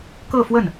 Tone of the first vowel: falling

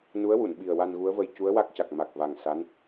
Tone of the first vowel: rising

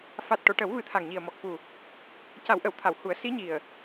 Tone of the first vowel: low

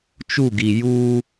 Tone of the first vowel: falling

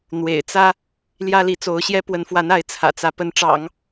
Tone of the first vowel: low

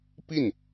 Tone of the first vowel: falling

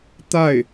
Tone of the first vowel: falling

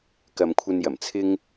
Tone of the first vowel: low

